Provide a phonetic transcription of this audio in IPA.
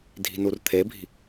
dʱ i̤ n u r t̪ʰ e bʱ i̤

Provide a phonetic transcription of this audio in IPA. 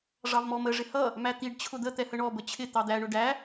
ʐ ɑ v m ɔ m ə ʐ ɪ h ʌ | m æ t̪ i ɖ t͡ɕʰ ʊ d̪ ə t̪ ɛ h ə ɳ ɔ b ə t͡ɕʰ ɪ t̪ ɑ d̪ æ ɳ ʊ ɖ æ

